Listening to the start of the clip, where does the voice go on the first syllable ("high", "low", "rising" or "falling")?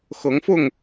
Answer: rising